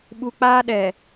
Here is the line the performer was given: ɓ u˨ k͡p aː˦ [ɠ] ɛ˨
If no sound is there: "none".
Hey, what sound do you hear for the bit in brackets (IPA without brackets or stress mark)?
ɗ